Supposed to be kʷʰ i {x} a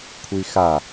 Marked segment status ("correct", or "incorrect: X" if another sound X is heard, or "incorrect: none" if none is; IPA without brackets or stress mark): correct